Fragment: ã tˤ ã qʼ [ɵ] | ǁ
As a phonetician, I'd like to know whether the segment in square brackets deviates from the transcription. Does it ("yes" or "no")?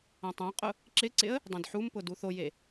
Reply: yes